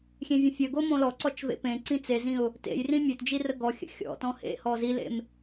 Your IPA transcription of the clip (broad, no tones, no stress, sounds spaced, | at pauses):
xʲ ẽ vʲ ə̃ fʲ ə ɡ o m õ l ɔ ǀ ɔ t͡ʃ v ḛ p ẽ ǀ ĩ t͡s e z ĩ ʊ̯ | t ḛ j r ĩ mʲ ø t d͡ʒ i r ə ɡ ɔ xʲ ə̰ xʲ ɔ̰ t ɔ̃ h ḛ h ɔ z i l ḛ m